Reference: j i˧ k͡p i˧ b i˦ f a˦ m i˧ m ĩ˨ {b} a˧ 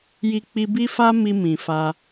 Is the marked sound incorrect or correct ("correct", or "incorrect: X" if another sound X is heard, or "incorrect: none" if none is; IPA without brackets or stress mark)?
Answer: incorrect: f